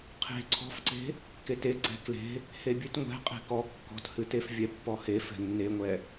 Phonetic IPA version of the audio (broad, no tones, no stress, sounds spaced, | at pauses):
qʰ e̤ ǀʰ ɔ̤ f ǀ e̤ | k e t e ɡ͡ǀ ɛ̤ k l e̤ | h e bʲ ɨ t ŋʷ ɛ̤ qʼ e̤ k ɔ kː ɔ̤ t h ɨ t e f vʲ ɛ pː ɔ h e f ɛ̤ nː e ŋʷ ɛ